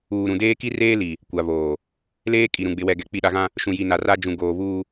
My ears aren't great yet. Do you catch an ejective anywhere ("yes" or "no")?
yes